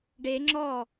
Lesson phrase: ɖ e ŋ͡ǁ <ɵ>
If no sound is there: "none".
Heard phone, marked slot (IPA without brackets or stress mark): ɔ